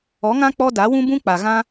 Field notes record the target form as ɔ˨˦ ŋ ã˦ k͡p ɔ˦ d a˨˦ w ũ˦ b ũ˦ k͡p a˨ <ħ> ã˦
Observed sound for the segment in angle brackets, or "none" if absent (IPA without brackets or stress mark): ɣ